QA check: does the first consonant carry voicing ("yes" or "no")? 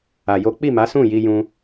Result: yes